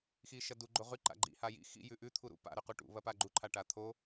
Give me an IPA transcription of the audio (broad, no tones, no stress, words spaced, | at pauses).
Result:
xiʃɐdu ɡ͡ǃoʁʉ ǃa̰ɡ͡ǃḭ hajḭ xḭ jʉʔʉ t̪ʰuɾṵ pa̰ ɾʉquʈṵ βɐpaɡ͡ǃu ǃʰaʈat̪ʰo